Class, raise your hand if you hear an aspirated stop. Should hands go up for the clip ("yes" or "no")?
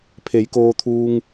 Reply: yes